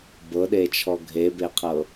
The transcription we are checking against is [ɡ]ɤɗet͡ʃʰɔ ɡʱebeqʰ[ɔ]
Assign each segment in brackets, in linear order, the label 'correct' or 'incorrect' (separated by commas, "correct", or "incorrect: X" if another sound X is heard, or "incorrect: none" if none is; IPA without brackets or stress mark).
incorrect: b, incorrect: ɤ